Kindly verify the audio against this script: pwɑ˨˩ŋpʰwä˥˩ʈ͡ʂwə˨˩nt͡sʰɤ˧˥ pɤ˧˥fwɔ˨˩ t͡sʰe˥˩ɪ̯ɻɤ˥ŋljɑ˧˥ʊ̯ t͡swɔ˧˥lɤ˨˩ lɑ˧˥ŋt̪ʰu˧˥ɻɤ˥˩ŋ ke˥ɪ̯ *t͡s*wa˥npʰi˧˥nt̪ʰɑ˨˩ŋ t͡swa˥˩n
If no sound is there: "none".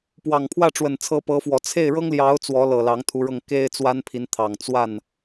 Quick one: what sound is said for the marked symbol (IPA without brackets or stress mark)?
t͡s